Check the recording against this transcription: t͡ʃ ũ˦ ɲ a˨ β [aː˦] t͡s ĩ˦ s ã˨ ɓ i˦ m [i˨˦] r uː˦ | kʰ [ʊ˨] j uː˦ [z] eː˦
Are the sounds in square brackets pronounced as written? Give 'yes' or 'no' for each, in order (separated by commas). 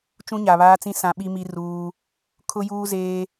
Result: yes, no, no, yes